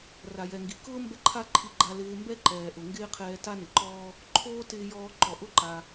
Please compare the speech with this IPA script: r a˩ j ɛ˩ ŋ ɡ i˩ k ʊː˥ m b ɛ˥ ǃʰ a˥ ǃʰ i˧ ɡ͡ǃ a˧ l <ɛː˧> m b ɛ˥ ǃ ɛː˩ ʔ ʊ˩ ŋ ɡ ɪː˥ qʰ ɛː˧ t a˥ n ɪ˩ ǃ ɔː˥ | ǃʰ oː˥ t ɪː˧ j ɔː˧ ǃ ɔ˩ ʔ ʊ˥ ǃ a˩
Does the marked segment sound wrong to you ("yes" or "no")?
yes